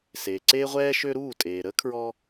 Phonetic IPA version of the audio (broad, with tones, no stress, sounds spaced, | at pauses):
s eː˩ ǀ eː˧ ʁʷ ɛː˧ ʃ ø˧ ɾ uː˥˩ tʼ eː˩ ɾ ə˥ kʰ ɹ ɔ˧